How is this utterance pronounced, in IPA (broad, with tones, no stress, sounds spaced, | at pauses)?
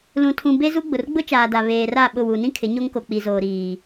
l ũ˨ tʰ ũ˨ b e˦ z u˦ ɡ͡b ʊ˨ r ɡ͡b ʊ˦ t͡ʃ aː˨ d a˨ β eː˨ r a˦˨ ɓ ʊ˦˨ w u˨ n ĩ˦ kʰ ɪ˨˦ ɲ o˦ ŋ k o˨ k͡p i˨ z oː˨ ɾ iː˨